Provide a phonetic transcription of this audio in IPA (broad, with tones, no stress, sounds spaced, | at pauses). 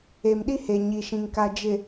e˨ m ɗ i˦ h e˨ ɲ i˨ ʃ ĩ˨ ŋ k a˨ d͡ʒ ɪ˨